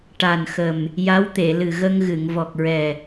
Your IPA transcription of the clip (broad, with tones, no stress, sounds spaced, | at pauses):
ʈ a˨˩ n x ə˨˩ m | j a˧˥ w t̪ e˨˩˨ l ɨ˨˩ ɣ ə˧ ŋ ɣ ɨ˨˩˨ ŋ v ɔ˨˩ k̚ ɹ ɛ˨˩